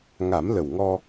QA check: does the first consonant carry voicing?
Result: yes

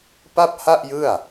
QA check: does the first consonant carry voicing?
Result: no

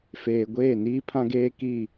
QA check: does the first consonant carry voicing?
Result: no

